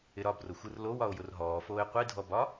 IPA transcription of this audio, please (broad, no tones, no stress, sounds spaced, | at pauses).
ɪ ɾ ɒ b r ʊ xʷ ɯ r l o w ɒ o̯ j ʊ r ɦ ɔː f oː e̯ qʷ i dʱ ɔ b ɒ